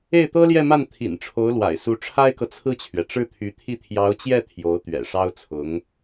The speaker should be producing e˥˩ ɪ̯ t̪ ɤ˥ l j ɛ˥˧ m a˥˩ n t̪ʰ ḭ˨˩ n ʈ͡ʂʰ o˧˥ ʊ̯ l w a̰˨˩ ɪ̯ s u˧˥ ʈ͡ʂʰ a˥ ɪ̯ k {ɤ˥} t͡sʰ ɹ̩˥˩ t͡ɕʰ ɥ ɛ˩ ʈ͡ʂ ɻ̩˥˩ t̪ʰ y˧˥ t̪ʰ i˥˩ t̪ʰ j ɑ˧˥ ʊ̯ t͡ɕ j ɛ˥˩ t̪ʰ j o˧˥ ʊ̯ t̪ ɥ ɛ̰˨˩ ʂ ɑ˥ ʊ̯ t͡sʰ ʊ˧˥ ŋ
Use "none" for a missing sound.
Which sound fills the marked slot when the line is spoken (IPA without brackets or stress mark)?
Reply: ɤ˨